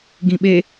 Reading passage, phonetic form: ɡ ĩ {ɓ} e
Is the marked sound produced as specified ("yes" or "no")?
yes